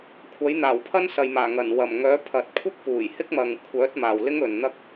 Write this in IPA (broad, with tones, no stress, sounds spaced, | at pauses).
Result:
kʷʰ ɐ˨˥ j n̪ aː˨˩ w pʰ ɐ˥ n s ɐ˨ j m aː˨˩ ŋ ɐ˨˩ n w ɐ˨˩ m ŋ œː˨˥ pʰ ɐ˨ t̚ kʷʰ ɐ˥ k̚ p uː˨˩ j h ɪ˥ k̚ m ɐ˨ ŋ kʷʰ œː˨˥ t̚ m aː˨ w l ɪ˥ ŋ ɵ˨ n n̪ ɐ˥ k̚